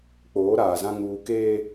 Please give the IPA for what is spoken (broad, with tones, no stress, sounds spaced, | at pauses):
k͡p oː˨˦ ɾ aː˨ z ã˦ ŋ uː˦ k eː˦